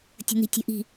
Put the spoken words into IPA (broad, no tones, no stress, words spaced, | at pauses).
tʲə̤n̪i̤tʲə̤ʔi̤